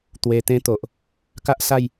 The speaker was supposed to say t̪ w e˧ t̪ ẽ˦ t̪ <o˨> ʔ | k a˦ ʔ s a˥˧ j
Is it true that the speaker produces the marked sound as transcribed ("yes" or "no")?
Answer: yes